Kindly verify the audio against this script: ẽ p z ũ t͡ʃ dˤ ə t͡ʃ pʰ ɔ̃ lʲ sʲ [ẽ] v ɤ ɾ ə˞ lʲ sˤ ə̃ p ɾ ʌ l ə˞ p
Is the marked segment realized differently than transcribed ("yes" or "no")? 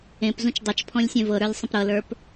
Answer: no